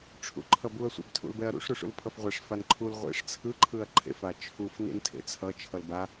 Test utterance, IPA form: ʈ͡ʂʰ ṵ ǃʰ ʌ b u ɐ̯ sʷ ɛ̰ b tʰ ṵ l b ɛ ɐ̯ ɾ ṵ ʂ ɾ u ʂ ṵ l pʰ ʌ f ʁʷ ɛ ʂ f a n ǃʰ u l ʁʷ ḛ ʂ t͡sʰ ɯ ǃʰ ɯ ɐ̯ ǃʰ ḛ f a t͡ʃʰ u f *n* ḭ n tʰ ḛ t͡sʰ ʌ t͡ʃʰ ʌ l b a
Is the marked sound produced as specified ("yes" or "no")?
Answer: yes